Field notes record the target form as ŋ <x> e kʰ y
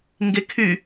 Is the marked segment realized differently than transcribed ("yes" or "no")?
yes